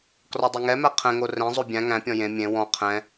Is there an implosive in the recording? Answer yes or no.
no